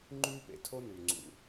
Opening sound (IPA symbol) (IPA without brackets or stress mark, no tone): ŋ͡ǃ